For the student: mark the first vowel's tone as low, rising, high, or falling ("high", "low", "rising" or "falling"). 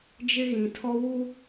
high